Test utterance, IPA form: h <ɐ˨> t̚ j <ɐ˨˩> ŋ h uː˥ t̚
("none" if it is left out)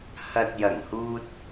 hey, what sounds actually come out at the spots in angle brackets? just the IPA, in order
ɐ˨, ɐ˨˩

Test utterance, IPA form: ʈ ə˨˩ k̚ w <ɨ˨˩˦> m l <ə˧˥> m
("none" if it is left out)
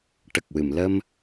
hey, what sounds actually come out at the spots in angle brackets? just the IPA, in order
ɨ˨˩˨, ə˧

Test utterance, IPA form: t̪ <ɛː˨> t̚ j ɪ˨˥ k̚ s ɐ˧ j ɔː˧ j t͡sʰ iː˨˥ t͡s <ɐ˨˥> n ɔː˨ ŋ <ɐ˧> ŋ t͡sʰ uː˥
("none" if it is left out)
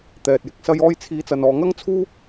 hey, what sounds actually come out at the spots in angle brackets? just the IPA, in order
ɛː˨, ɐ˨, ɐ˥

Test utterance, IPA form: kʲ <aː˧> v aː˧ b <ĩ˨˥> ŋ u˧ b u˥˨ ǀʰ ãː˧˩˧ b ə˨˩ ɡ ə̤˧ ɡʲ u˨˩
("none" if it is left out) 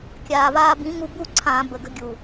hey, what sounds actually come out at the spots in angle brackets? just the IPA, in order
aː˨˩, ĩ˨˥

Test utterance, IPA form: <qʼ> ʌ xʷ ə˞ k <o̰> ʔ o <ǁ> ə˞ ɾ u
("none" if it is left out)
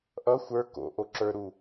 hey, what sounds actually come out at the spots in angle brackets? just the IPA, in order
ʔ, o̰, ǁ

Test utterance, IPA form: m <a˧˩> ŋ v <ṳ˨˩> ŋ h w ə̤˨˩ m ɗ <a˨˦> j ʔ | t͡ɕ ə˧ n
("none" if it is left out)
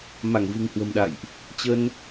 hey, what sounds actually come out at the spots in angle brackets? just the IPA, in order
a˧˩, ṳ˨˩, a̰˧˨

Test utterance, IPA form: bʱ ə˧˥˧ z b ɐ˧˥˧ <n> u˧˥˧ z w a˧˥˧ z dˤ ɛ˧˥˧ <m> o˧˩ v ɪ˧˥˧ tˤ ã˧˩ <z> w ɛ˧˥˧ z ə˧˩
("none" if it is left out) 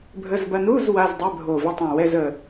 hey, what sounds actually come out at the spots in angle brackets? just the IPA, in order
n, bʱ, none

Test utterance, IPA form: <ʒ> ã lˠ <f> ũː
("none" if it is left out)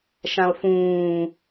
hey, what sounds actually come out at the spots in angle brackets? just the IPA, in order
ʃ, f

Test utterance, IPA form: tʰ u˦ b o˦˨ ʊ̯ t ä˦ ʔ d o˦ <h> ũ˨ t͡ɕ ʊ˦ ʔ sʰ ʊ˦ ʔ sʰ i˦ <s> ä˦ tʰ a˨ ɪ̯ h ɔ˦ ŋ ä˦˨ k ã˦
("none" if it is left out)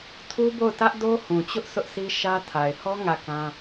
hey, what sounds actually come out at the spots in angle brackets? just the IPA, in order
h, ʃ

